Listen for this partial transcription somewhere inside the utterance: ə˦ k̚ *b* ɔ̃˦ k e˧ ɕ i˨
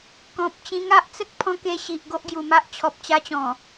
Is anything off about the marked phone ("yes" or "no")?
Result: yes